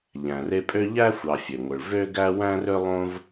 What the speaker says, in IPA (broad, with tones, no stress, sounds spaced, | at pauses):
ʎ æ̃˨ r e˦ pʼ ø˥ ʎ æ˥ xʷ ɑ˨ fʲ ø˩ ŋʷ ɯ˩ ɭ v ø˥ ɡ æ˥ w æ̃˥ r ø˥ lˠ õ˦ v